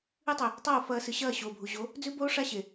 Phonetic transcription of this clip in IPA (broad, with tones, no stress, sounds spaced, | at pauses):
ɨ˧ tˤ ɵ˨ | tˤ oː˦˨ f ɐː˧ s ɨ˨˦ ɕ ɐː˦˨ ɕ oː˨ bʱ u˨ ʑ o˨˦ | d͡z ʉ˦ b oː˦ ʂ a˦ ɕ e˨